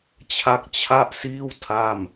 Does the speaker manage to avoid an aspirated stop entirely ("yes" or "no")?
no